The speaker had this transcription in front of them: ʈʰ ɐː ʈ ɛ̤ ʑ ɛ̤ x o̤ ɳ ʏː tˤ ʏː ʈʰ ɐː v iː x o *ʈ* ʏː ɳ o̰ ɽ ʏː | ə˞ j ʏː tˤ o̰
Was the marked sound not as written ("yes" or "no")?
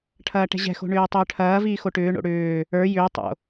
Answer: no